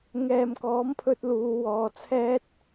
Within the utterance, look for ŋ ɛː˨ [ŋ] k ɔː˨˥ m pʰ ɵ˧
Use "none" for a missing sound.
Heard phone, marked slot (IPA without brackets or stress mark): m